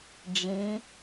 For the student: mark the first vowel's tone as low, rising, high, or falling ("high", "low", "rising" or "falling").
rising